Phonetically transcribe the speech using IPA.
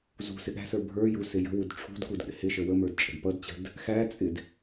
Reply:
zṳ sɪɠæ̤sə˞ bʱə˞ju sɪjə̤wud ʈ͡ʂʰṳdkud ɠɪhɪʃə wəmə˞d t͡ʃʼə̤dpʌdt͡ɕə̤d | xæt͡sʼɪd

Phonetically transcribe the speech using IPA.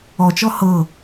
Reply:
ɔt͡ʃɔ hɤ

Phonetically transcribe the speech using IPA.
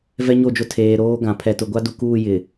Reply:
vɛ˦ɲo˦˨d͡ʒʊ˦ tʰeː˨ ɾoː˦ɡã˨ pʰɛ˨tʊ˨ɡʷa˦du˨ kuː˦˨jɪ˨

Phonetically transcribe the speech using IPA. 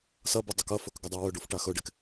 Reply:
sɐbɵ dˤɵkɐfɵk ɡɐdˤawɵɖuf ʈaxɵɖek

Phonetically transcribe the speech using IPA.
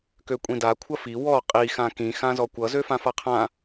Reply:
køkʷʼĩda kʷʰɐfi wɔ qʼi xãkĩ xãzɔkʷʌ zøfãfaqʰã

